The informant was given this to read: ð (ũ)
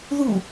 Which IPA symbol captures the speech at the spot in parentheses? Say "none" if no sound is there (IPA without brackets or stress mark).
u